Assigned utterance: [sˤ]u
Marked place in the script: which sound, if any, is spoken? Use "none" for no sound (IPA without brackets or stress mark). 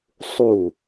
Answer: sˤ